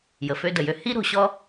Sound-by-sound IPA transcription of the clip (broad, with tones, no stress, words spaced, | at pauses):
jə˨fø˧də˨jø˧ hi˦ɾo̤˧ɕɔ˦